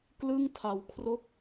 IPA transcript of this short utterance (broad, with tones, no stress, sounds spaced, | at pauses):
k l ɯ˥˩ ŋ tʰ a˩˦ w kʰ r o˦˥ k̚